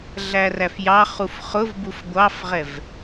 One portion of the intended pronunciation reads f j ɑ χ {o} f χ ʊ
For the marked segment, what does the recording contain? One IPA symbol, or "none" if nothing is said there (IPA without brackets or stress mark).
u